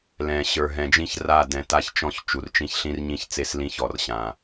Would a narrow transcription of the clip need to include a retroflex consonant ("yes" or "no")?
no